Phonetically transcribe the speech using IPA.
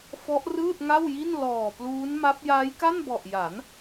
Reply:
fɔ˦˥ʔrɯː˥˩t̚ŋa˥˩wji˥˩n lɔː˨˩pluː˦˥nma˦˥p̚ jaː˦˥jka˥˩nbɔ˨˩ʔja˩˦n

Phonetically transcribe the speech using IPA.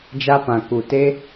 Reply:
d͡ʒa˦pã˨ ku˨te˦

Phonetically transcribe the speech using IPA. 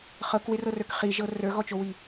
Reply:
χɤkwɪrɤrə˞k χiʒɤ rə˞ɣɔt͡ʃowi

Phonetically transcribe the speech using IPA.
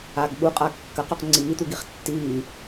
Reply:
aɡ ɠuqʼa kːɐqɵq ŋ͡ǀiːt̪uɡiχ tːiː

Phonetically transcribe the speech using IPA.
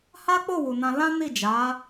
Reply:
ha˦k͡po˦˨ wu˨ nã˧lã˦ni˦˨ d͡ʒa˨˦

